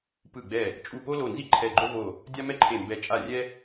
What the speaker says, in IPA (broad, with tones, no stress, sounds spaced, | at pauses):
p ɯ˧˩ ɡ͡b ɛ˧˩ | t͡ʃʼ u˧˩ p o˦ l o˧˩ n z i˦ ǃʰ ɛ˧˩ ɡ͡ǃ o˦ v o˧˩ | dʲ a˦ m ɛ˦ ǃʰ e˧˩ m b ɛ˧˩ t͡ʃʼ a˧˩ rʲ ɛ˦